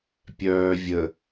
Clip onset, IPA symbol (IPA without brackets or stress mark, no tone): pʲ